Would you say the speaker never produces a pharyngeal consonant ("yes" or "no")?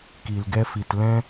yes